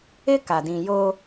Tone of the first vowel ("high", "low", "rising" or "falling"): high